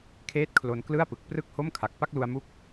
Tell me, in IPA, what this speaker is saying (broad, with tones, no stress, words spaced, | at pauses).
kʰeː˦˥t̚kʰlo˧nklɯ˥˩a̯pɯ˨˩k̚ prɯ˥˩k̚ho˥˩mkʰa˨˩k̚ pa˥˩k̚lu˧a̯mu˦˥k̚